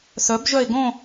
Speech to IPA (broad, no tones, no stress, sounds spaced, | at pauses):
s œ b ʒ œ e̯ ɡ õ